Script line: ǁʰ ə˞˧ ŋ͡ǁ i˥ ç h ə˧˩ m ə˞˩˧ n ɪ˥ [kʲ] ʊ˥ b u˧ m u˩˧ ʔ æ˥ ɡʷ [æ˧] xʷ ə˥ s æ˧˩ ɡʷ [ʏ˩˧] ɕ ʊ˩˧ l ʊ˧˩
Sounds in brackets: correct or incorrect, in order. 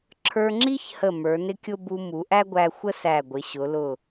correct, correct, incorrect: ɪ˩˧

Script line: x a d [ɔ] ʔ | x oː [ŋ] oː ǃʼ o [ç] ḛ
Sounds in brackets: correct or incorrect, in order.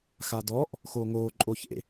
correct, correct, correct

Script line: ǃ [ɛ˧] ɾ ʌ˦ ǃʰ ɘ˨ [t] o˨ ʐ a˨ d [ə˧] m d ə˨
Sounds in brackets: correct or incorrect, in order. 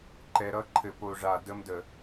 incorrect: ɛ˨, incorrect: p, correct

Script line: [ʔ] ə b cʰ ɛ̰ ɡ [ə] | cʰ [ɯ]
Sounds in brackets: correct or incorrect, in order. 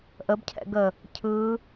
correct, correct, correct

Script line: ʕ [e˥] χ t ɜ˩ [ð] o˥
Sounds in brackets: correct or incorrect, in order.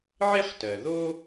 correct, correct

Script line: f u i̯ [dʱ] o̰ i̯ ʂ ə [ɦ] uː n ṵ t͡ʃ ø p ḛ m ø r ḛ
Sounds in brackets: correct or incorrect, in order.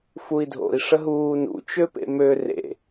correct, correct

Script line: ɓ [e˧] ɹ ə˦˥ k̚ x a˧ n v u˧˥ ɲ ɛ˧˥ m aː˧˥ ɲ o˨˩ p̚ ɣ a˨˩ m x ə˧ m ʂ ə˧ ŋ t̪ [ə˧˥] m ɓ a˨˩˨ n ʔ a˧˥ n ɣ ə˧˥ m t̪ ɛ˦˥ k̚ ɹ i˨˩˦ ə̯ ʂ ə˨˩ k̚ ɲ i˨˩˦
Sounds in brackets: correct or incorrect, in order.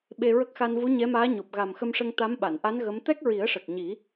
correct, incorrect: a˧˥

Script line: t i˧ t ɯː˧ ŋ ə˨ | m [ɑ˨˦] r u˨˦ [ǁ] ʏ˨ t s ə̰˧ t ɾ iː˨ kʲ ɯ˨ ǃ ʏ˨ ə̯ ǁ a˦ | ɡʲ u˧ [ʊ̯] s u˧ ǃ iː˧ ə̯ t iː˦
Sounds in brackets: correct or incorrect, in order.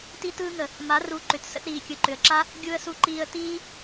incorrect: a˨˦, incorrect: ǃ, incorrect: ə̯

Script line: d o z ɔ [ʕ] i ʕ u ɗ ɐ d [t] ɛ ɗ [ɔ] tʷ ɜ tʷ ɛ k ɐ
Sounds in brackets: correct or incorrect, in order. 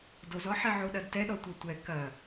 incorrect: ħ, correct, correct

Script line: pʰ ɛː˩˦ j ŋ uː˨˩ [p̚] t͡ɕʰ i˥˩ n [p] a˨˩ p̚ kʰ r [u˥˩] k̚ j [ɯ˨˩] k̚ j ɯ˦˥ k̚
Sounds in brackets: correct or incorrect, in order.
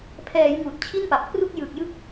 incorrect: t̚, correct, correct, correct

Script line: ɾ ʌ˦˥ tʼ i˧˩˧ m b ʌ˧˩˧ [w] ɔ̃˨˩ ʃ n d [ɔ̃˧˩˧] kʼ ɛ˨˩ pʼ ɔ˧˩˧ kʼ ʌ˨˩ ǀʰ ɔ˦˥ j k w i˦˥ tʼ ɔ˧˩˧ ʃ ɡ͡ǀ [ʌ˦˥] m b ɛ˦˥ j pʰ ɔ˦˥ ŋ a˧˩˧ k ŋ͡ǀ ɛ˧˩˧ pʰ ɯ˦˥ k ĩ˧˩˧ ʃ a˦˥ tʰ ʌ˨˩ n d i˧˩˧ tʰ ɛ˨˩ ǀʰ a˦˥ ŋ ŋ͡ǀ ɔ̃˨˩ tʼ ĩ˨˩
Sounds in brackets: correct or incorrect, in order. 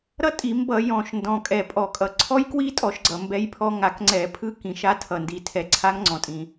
incorrect: j, incorrect: ɔ̃˨˩, incorrect: ʌ˨˩

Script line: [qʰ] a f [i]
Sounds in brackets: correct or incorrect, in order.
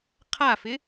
correct, incorrect: ɪ

